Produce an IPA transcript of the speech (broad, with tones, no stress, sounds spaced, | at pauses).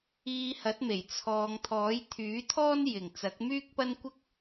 iː˧ h ɐ˨˥ t̚ m e˨˩ j t͡sʰ ɔː˨ ŋ t̪ʰ ɔː˨˥ j t̪ʰ yː˨˥ t̪ʰ ɔː˥ n j ɪ˨˩ ŋ t͡s ɐ˨˥ k̚ m yː˥ k̚ p ɐ˥ n kʷ ɪ˥ k̚